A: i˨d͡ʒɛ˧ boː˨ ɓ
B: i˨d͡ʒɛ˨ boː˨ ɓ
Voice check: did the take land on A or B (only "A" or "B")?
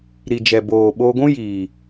B